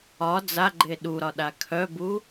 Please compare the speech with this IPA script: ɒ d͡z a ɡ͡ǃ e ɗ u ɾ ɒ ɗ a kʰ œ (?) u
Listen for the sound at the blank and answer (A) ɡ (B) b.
B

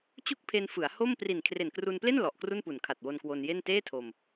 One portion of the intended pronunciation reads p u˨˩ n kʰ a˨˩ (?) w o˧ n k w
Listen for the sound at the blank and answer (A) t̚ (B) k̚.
A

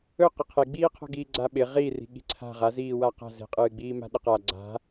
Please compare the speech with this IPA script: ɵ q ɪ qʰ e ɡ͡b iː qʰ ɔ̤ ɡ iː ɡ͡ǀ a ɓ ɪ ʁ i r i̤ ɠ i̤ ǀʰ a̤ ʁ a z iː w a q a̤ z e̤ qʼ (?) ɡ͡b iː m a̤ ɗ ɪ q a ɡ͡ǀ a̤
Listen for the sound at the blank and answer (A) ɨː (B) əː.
A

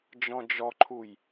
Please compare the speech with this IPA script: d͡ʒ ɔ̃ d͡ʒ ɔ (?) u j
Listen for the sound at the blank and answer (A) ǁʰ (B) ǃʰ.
B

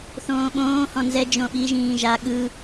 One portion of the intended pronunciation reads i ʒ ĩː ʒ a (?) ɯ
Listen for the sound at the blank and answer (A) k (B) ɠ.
B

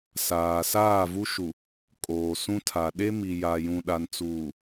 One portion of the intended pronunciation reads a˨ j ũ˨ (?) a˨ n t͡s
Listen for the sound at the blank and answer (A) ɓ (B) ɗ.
B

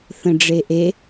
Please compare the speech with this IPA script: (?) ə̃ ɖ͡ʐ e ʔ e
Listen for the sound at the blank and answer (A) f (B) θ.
B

